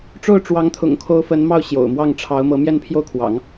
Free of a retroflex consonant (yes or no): no